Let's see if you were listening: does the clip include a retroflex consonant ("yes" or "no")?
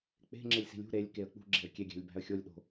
no